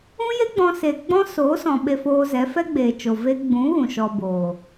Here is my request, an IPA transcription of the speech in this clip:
ũ˦ j e˦ ɡ͡b ɔ̃˧ s e˨ ɡ͡b ɔ̃˦ s oː˨˦ s ɔ̃˨ ɓ e˧ f oː˧ z ɛ˨˦ f ɛ˦ ɡ͡b eː˨ t͡ʃ o˨ v e˧ ɡ͡b ũ˨˦ ɣ ũ˨ ʃ ɔ˧ b oː˨

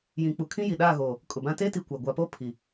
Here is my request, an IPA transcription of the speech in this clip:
j ĩ˨ k͡p u˨ kʰ ĩ˦ j i˨ ɗ aː˦˨ ɣ oː˨ | kʼ ʊ˨ b ã˦ t e˦ t i˨ kʷ a˨ ɡʷ a˨ p o˦ pʰ i˨

